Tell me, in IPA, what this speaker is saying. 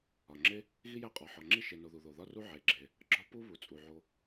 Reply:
ɒ˩ŋ͡ǁe˦ | ɣi˦ jæ˦qʼɒ˩ħɒ˩ŋ͡ǁi˦ ʃe˨no˨ ðu˩ðo˩ðɒ˦ru˦ ʕe˩ɡ͡ǁe˩ | ɡ͡ǁɒ˦pu˦ βu˩t͡sʼu˩ʕo˨

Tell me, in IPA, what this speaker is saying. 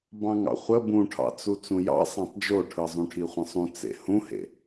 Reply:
bɑ̃ŋɑ̰χʷə bũʈʰɑ̰t͡su t͡sũjɑ̰ sˤɑ̃tˤd͡ʒoʈʰɯ zˤũʈʰiχʷə̃sˤũ t͡sḛhũhḛ

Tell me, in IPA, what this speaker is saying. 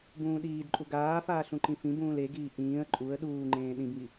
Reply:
bũːɗiːdǃʼu ɡaːfaːɬ ũǃĩfĩbũːl eɡiː ʔĩːə̯ ǃʼuə̯ ɗuːŋ͡ǃẽː ɗĩbŋi

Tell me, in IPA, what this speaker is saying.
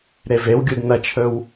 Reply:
ɾevewɡʲud n̪ɐt͡ʃʰɵw

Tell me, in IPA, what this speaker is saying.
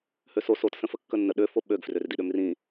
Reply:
høso sotsə̃fə kːənːə ɗøfo ɓøɡfrør diɗømrĩ

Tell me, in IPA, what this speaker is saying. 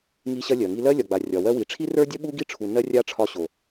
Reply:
ŋi˧ɕɐ˧ lʲɜ˨ŋi˦ lɜ˦lʲɒ˨ɡ͡ba˨ rʲɒ˨wɜ˧wi˨ ʈ͡ʂʰi˦rə˞˦dʲɐ˦ ɓu˦ɡi˦ʈ͡ʂʰu˨ nɜ˦rʲa˦ʈ͡ʂʰɒ˧ɕo˨

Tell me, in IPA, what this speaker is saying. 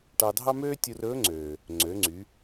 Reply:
ʈɑ˧dʱɑ˥møː˥ tʲu˧rɵː˧˥ŋ͡ǀøː˩ | ŋ͡ǀø˩˧ŋ͡ǀy˩˧

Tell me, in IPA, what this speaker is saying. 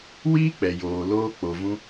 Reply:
wiː˦k͡pɛ˨joː˨ loː˧k͡po˨vũ˧

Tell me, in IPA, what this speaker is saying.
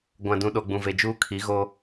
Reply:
ɡʷã˨dũ˨ɗo˨ ɡ͡bũ˨ve˨d͡ʒuː˦kʰi˨˦ ɣo˦

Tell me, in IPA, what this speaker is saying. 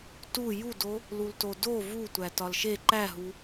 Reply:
tu judo | lultodo vu tʷætɒlʃe ǃæɦu

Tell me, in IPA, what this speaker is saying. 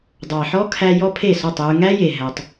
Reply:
dˤɑ˨ħɔ˦kʰæ˧ jɔ˦pʰe˦˨sɔ˦˨tˤjʉ˧ ŋæ˦je˨ ɦæ˧tˤ

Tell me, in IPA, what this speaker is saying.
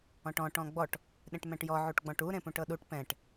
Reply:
ɔ̃ʈɔ̃ ʈɔ̃ɡ͡bɔʈ | ɗẽʈmɛ̃ʈjɔ ʕuʈɡ͡bɔ̃ʈu ɾẽpũʈɤɗuʈ pɛ̃ʈ

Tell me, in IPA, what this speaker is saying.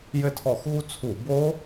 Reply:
jɘ˦˨tʰɔ˧˩˧xɣu˦˥ t͡sʰu˧˩˧bo˦˥

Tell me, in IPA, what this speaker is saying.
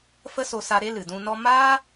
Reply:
fə˦so˧sa˧ ɾe˦lɨ˨dũ˧nɔ˦ maː˦

